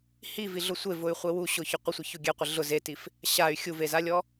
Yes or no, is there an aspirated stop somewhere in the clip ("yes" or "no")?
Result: no